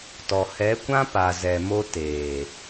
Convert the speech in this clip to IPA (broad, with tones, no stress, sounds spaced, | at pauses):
t ɔ˨ h ɛ˨˦ kʷ ã˦ p a˨ z ɛ˨ m o˧ t eː˨